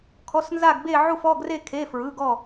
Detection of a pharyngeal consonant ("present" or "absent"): present